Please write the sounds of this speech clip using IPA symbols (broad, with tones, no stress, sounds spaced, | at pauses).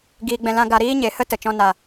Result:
ɡ iː˧ ɡ͡b ɛ̃˧ l ã˦ ɡ a˧ ɾ iː˦ ɲ e˨ h ə˦ t ə˨ t͡ʃ ɔ̃˧ n a˨